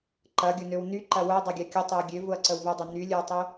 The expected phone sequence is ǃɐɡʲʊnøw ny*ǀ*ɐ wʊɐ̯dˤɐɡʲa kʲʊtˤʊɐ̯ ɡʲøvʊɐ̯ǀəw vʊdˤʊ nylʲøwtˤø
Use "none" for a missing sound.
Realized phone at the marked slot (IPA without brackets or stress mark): ǃ